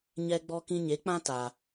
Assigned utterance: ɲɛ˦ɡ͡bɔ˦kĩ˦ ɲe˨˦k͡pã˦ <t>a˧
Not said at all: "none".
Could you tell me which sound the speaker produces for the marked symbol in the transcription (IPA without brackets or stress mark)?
t